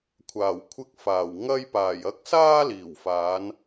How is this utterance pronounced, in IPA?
kʷʰ aː˨˩ w kʷʰ ɪ˧ k̚ f aː˨˩ w ŋ ɐ˧ j p aː˨˩ j ɐ˨˥ k̚ s aː˧ l iː˨˩ w f aː˨˧ n

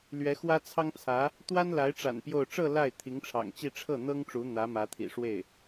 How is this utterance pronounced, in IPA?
l ɥ ɛ˧˥ x w ä˥ t͡sʰ ɑ˥ ŋ t͡sʰ ä˧˥ | t̪ w a˥ n l a˧˥ ɪ̯ ʈ͡ʂ a̰˨˩ n p j o˥˧ ʊ̯ ʈ͡ʂ ɤ˥˧ l a˥˩ ɪ̯ t̪ʰ i˧˥ ŋ ʈ͡ʂʰ ɑ̰˨˩ ŋ t͡ɕ i˥˧ ʈ͡ʂʰ ɤ˥˩ n̪ ɤ˥ ŋ ʈ͡ʂ u˧˥ n̪ ä˧˥ m ä˧˥ t̪ʰ ḭ˨˩ ʂ w e˥˩ ɪ̯

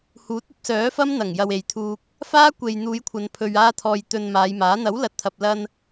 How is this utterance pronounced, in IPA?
h uː˨˥ t̚ ɐ˧ p̚ s œː˨˥ f ɐ˥ m n̪ ɐ˨˩ ŋ j ɐ˨ w e˨ j t̪ʰ uː˧ k̚ | f aː˥ kʷ e˨ j n̪ uː˨˧ j kʷʰ ɐ˨ n pʰ ɵ˨ ɥ aː˧ t̪ʰ ɔː˨ j t̪ ɵ˧ n m aː˨˧ j m aː˨˥ n̪ ɐ˨˥ w l ɐ˨˥ t̚ t̪ʰ ɐ˨ p̚ l ɐ˧ n

